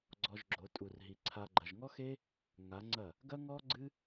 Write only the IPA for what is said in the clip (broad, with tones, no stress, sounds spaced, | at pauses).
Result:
ɡ͡ǀ ɔ˧ ʒ ɡ͡ǁ o˨˦ tʼ u˨ r ɦ i˨ ǀʰ a˧ ɡ͡ǃ ɐ˨ ʒ ŋ ɔ˦ x e˦ | ŋ a˨˦ ŋ͡ǀ ɐ˦˨ | ɡ ɐ˦ ŋ ɔ˦ ɡ͡ǀ ɨ˦